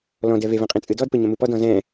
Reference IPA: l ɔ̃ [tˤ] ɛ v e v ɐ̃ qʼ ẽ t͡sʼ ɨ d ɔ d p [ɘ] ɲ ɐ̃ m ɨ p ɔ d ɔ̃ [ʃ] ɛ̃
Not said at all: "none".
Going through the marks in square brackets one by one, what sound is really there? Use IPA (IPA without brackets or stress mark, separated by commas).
d, ɘ, z